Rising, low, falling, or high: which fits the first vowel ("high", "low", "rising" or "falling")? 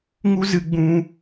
high